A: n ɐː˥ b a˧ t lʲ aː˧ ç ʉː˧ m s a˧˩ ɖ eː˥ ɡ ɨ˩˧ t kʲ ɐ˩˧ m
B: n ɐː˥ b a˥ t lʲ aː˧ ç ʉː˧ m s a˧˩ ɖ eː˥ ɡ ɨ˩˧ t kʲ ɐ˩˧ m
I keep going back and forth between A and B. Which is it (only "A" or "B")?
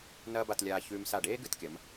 A